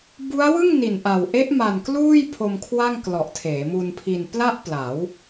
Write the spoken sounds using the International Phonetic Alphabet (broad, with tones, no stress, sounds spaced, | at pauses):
b u˦˥ a̯ w ɯ˥˩ ŋ n i˨˩ n ʔ a˨˩ w ʔ e˦˥ ʔ m a˨˩ n k l uː˥˩ j pʰ o˧ m kʰ w a˥˩ ŋ k l ɔ˨˩ ʔ tʰ eː˩˦ m u˧ n pʰ i˧ n p l a˥˩ ʔ p l a˩˦ w